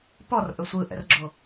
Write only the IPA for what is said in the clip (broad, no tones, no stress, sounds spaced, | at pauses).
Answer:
p ɔ r ʔ ɵ sʷ ɯ ʔ ɛ̰ r ɡ͡ǁ o